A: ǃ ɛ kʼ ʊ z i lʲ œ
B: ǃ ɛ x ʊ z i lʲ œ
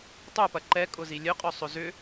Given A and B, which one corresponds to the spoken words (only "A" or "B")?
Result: A